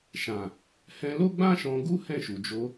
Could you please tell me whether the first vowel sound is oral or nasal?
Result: nasal